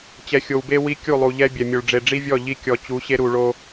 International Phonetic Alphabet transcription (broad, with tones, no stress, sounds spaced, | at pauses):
t͡ɕ ɛ˨ xʲ o˨ w b e˦ w i˦ kʲ u˦˨ lˠ u˨ ʎ ɛ˦ bʲ ɛ˨ mʲ o˨ ɭ ɖ͡ʐ e˨ ɖ͡ʐ i˦ vʲ ɔ˦˨ ʎ i˦ kʲ ɔ˨ t͡ɕ u˨˦ ɕ e˦ ɾ u˨ ɭ o˦